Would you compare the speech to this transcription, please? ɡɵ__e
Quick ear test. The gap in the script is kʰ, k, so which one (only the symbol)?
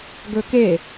k